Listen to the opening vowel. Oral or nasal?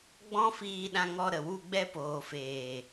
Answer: nasal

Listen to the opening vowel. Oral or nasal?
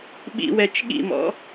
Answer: oral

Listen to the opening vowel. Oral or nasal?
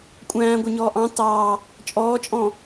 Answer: nasal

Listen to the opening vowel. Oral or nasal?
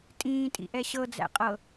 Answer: nasal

